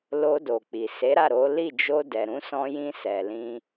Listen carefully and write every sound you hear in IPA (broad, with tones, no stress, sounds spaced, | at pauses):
l o˧ d o˨ k͡p i˨ s e˨˦ ɾ a˦˨ ɾ o˨˦ l i˦˨ d͡ʒ o˧ d ɛ˨ ɾ ũ˨˦ s ɔ̃˧ j ĩ˧ s ɛ˨ l ĩ˧